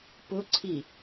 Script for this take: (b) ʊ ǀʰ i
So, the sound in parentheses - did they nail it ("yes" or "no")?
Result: no